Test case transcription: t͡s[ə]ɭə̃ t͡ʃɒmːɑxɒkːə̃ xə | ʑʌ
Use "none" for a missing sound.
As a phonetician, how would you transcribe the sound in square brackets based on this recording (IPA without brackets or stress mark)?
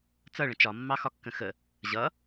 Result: ʌ